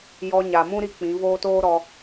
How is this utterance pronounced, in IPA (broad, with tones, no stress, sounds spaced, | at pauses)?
j ɔ˧ ɲ a˨ m ũ˦ ɾ i˧ k͡p ĩ˨˦ v oː˦ t oː˦ ɾ ɔ˧